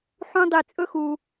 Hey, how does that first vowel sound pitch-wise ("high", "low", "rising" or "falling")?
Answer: high